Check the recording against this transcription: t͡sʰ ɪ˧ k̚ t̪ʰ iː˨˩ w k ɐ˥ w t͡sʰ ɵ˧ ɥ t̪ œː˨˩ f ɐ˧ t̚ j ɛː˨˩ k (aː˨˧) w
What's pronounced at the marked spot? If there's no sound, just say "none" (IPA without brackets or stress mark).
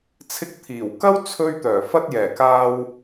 aː˧